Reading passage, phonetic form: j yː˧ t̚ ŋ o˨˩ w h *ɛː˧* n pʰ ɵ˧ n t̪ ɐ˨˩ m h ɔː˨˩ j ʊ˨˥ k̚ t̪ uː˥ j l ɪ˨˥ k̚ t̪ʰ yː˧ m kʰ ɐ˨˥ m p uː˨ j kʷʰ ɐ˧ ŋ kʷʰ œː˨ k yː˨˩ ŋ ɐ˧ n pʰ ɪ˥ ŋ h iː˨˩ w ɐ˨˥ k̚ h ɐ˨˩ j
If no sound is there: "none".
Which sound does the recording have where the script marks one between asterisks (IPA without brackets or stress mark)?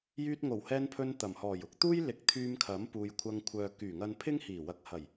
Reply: ɛː˧